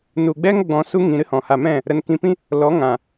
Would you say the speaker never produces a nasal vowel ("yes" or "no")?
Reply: no